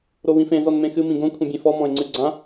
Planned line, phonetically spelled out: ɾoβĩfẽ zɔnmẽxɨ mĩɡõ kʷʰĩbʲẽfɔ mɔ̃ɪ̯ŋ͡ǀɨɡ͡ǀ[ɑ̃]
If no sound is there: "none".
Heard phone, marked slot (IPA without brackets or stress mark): ã